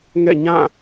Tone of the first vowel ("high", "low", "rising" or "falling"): falling